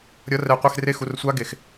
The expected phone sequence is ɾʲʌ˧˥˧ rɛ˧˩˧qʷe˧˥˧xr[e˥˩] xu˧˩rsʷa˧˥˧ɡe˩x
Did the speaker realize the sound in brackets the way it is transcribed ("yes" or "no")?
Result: yes